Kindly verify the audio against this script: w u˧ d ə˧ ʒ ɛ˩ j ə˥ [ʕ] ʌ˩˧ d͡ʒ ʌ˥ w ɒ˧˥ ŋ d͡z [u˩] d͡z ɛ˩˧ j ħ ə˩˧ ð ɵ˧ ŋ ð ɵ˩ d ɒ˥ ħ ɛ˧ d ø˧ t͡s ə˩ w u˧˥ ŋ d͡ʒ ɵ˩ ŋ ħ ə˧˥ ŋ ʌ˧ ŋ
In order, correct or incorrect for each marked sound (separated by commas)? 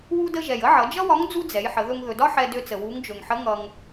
correct, incorrect